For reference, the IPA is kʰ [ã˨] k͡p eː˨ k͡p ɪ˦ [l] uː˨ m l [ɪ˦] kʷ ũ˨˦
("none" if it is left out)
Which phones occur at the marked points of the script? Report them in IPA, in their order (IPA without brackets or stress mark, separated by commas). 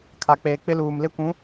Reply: a˨, l, ɪ˦